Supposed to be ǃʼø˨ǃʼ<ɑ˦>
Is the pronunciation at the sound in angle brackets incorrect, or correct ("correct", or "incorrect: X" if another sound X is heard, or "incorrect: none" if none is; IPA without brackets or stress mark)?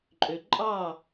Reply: incorrect: ɑ˦˨